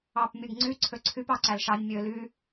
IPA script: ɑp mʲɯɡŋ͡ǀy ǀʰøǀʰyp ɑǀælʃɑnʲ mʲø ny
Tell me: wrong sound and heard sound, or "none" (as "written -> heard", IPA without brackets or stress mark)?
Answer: n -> l